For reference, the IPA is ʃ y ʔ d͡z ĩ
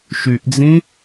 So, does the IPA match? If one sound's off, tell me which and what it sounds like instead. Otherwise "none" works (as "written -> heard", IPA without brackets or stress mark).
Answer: none